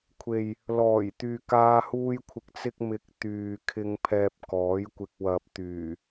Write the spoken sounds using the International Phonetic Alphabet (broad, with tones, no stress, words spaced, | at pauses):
kʷʰe˨j | lɔː˨˩j t̪yː˨kaː˧huː˧j kʷʰɪ˨k̚t͡sɪ˧k̚mɪ˨˥k̚ t̪yː˨kʰɪ˧ŋ pʰɛː˧p̚kɔː˨˥jkʷɪ˧k̚wɐ˧p̚ t̪yː˨˩